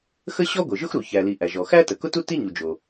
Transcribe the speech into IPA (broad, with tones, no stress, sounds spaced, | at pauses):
x ə˥ ɕ ɔ˥ ɡʷ ɘ˩ ʒ ʊ˥ x ɾ u˩ ç æ˩ l i˩ ʔ æ˩ ʒ ɔ˩ x æ˥ t ə˩ k ʊ˥ t u˥ t i˥ ɲ u˩ d͡ʒ o˩